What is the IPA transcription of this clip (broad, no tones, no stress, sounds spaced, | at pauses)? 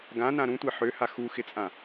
ɡ ã n ã ɾ ũ tʷ e ħ ø h a x u x ɪ t͡sʼ ã